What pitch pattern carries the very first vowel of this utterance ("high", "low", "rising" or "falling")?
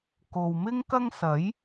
low